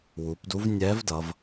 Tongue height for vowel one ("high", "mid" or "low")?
high